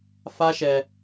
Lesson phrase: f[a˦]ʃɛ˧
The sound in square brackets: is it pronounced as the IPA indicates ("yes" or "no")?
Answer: yes